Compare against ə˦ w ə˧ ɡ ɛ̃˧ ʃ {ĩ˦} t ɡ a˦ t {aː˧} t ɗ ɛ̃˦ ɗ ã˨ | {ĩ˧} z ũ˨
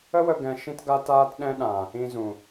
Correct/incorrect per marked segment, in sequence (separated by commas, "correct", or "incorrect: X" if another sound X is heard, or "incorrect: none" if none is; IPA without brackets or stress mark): correct, incorrect: aː˦, correct